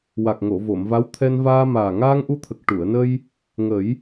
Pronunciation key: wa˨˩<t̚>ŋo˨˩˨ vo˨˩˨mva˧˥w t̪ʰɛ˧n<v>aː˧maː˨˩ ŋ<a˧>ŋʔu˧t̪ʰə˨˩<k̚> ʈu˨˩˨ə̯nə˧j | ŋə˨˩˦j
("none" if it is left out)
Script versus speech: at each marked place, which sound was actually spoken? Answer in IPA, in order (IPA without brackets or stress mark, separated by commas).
k̚, v, aː˧, k̚